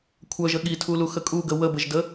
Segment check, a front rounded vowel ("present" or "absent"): present